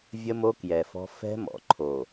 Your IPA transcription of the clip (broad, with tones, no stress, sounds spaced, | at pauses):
vʲ ə˦ m o˦ k j ɛ˨ f ɔ̤˦ f ɛ̤˦ m ɔ̰˨ ǃʰ o˨